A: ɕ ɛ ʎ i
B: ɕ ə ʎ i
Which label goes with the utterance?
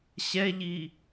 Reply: A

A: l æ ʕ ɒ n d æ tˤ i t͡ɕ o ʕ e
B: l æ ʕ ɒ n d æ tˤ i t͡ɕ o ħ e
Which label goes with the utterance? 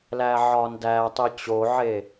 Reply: A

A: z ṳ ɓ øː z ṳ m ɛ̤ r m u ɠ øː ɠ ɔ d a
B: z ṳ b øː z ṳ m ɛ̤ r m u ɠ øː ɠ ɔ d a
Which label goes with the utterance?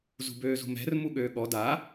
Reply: B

